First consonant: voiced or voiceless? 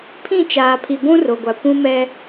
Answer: voiceless